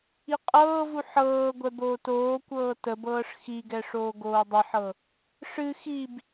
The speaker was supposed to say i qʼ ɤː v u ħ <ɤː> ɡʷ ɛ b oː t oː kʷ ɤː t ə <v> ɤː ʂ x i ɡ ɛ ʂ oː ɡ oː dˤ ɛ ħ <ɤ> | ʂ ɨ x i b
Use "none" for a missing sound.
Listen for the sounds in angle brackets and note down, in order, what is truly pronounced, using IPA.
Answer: ɤː, b, ɤ

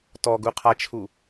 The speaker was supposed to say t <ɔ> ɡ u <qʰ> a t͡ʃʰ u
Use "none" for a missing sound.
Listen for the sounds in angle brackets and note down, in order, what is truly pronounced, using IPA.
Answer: ɔ, qʰ

